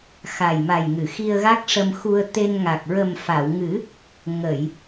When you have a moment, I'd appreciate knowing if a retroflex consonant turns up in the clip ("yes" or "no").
yes